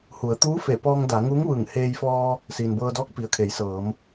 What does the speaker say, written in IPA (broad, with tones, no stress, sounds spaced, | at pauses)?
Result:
h u˩˧ ə̯ t̪ uː˧˥ f e˧˩ p ɔː˧ ŋ d a˩˧ ŋ uː˧˥ ŋ ʋ ɯː˧˩ ŋ h eː˧ j f ɔː˧ | s iː˩ n b ɤː˧ d ɔː˧˥ k̚ p i˩ ə̯ kʰ e˩˧ j s ɤː˩˧ m